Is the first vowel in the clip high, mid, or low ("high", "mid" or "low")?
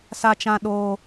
low